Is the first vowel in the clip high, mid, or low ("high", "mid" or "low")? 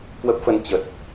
mid